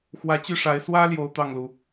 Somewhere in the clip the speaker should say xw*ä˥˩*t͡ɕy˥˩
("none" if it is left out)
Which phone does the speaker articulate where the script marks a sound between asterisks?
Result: ä˧˥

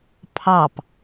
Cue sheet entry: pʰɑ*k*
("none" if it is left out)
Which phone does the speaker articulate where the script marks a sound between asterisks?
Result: p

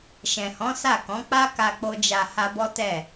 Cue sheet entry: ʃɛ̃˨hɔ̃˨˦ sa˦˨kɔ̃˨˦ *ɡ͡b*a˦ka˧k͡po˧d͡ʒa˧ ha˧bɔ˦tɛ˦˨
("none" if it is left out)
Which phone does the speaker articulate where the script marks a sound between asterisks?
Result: k͡p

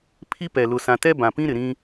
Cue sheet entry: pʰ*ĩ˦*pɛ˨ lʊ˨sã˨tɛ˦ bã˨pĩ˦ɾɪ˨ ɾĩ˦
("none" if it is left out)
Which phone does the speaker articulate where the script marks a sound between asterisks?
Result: i˦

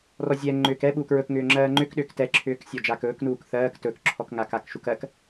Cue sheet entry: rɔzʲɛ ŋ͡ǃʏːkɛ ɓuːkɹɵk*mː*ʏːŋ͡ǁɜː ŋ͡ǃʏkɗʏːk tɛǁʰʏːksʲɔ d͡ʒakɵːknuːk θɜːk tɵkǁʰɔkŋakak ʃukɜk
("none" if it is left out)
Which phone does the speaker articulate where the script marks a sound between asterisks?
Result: ŋ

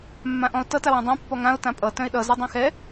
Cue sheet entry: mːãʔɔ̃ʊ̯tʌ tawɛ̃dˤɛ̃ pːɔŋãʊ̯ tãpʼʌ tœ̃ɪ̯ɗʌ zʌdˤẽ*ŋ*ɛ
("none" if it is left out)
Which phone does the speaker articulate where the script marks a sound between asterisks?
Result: x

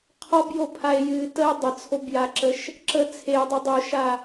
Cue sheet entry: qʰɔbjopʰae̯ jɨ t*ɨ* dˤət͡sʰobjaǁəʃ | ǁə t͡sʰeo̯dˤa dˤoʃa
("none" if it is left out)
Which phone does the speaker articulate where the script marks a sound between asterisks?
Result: ə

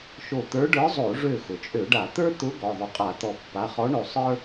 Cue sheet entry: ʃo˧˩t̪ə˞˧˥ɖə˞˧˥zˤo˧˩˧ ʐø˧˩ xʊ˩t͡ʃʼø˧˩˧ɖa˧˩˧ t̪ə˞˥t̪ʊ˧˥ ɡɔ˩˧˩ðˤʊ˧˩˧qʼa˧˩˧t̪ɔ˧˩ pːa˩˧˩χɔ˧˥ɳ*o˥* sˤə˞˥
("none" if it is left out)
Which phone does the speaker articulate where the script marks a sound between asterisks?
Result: o˧˩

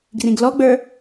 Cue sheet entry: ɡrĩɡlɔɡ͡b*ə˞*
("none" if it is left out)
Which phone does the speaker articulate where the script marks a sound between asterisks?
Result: ə˞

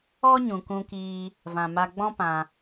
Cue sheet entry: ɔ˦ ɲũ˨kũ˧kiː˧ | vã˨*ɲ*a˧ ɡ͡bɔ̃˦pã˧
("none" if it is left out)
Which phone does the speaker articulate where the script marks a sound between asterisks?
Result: m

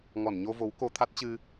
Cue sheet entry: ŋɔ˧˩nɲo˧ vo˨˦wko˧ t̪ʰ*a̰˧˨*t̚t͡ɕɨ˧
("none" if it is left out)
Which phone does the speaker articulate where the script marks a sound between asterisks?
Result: a˦˥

